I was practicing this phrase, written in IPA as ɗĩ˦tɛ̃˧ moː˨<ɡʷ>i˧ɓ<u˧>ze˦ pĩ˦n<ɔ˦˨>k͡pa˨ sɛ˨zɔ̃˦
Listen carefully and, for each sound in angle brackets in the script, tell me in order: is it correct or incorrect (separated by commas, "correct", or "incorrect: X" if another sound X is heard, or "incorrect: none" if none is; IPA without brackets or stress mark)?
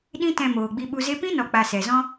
incorrect: ɡ͡b, correct, incorrect: ɔ˨